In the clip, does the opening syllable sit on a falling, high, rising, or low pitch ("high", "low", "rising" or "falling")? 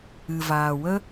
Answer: low